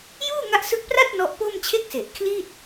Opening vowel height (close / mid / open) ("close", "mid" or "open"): close